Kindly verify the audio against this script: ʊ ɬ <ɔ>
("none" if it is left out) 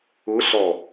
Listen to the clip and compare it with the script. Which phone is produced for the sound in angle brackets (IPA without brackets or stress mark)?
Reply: ɔ